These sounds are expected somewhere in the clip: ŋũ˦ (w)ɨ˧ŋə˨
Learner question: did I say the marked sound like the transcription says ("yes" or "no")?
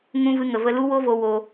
no